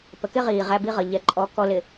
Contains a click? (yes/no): yes